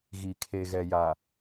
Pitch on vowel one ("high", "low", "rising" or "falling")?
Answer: low